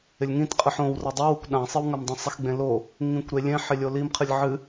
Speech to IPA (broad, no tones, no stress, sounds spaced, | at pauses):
ɪ lʲ ŋ ĩ t qʼ ɨ ħ õ w r a dˤ i w u kʷ ɗ ã sˤ ɨ w ŋ a m dˤ ĩ sˤ ɪ x ɡ͡b ẽ l o | ŋ ĩ kʷ ɾ e lʲ ẽ ħ ɪ lʲ o l i m qʰ ɨ lʲ ʕ ɨ